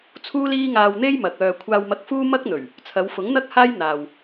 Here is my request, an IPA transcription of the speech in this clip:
t͡sʰuː˥liː˥ ŋaː˧wn̪e˥j mɐ˨k̚œː˧ kʷʰaː˧wmɐ˧k̚fuː˥ mɐ˥k̚n̪ɵ˨˩ɥ | t͡sʰɐ˨˧w fʊ˨˥ŋn̪ɐ˥k̚haː˥j n̪aː˨w

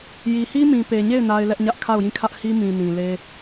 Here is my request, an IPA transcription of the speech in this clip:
ji˨hi˦mĩ˨ pe˨ɲe˦˨ɪ̯ na˦ɪ̯lɛ˦ʔɲä˦ʔ kʰa˦˨ʊ̯jĩ˦˨kʰä˦ʔ hi˦ mĩ˨nĩ˨le˦

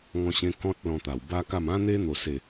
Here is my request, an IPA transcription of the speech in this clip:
ŋɔ̃˧ɕẽ˧ kɔ̃˦t̚ lɔ̃˧t̪a˨˩w ba˦ka˥˧m ã˦n̪e˦ n̪o˥˧se˥˧

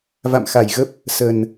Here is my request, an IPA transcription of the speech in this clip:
va̰˧˨mxa˧˩jɣə˦˥p̚ | sə˨˩n

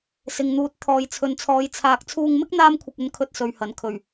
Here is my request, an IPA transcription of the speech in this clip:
sɪ˨ŋn̪uː˨t̚ t̪ʰɔː˨jt͡sʰɵ˨nt͡sʰɔː˨˧j t͡sʰaː˧k̚ t͡sʰuː˧ŋmɪ˥k̚ n̪aː˥mkʷʰɪ˧k̚ɵ˧nkʰɵ˧t̚ sɵ˨ɥhɐ˨˩n kʰɵ˨˩ɥ

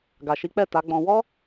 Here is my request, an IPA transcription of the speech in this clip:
ɡa˨ʃi˨˦k͡pɛ˦˨ ta˨˦ɡ͡bɔ̃˧ wɔ˦

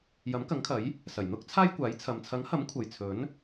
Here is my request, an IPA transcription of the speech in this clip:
jɐ˨˥mkɐ˨˥ŋkʰɐ˨˥j | sɐ˨˩j n̪ʊ˥k̚ t͡sʰaː˥jkʷaː˨˥jt͡sʰɐ˨m t͡sʰɐ˨˥ŋhɐ˨˥m kʷʰɐ˨jt͡sʰɵ˨˥n

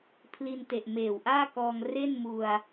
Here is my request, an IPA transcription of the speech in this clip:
pʰli˧nte˨˩ʔ meː˨˩wʔaː˥˩kɔː˧ŋ re˥˩nmu˧a̯

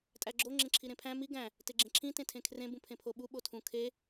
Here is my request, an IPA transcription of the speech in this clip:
tʼæɡ͡ǁo ŋ͡ǁẽǁʰiɾẽpʰæ̃ mi ɡæ̃ | teɡ͡ǁẽǁʰĩ tẽtʰẽkʰrẽ bũpʰẽpʰoɓu ɓotʰũ kʰe

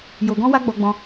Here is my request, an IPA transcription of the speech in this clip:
jo˨ɡɔ̃˧wa˧ ɡ͡bɔ˧ɡ͡bɔ̃˧

